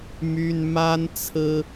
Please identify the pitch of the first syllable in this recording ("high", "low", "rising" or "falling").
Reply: high